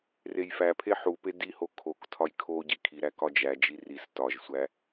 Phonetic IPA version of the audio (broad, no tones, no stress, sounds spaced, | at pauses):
r e j f æ pʰ e ħ u p e d i h o kʰ o k tʰ ɒ j kʰ o ɟ i kʰ i ɾ æ k ɒ d͡ʒ æ d͡ʒ i r i s t ɒ ʒ sʷ æ